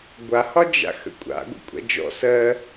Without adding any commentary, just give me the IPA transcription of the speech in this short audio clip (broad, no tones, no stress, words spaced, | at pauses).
ɡʷahɒd͡ʒa̰ xə̰kʷʼa̰ɡʷə̰ kʷʼa̰d͡ʒɔ̰ sɜ